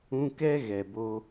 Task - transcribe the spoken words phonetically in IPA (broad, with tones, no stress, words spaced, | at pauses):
ũ˧kɛ˦ɣɛ˨bo˧